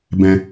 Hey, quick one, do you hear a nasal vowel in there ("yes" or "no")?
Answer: yes